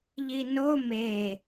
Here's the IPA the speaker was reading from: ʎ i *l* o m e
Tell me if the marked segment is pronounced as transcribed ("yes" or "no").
no